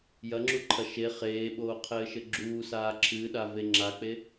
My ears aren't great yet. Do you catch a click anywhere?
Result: yes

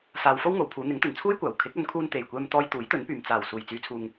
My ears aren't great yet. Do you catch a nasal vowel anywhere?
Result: no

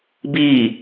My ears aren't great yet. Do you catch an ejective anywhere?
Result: no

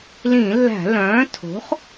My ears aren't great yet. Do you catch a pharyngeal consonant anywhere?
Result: no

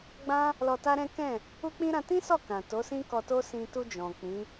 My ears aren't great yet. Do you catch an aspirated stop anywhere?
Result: no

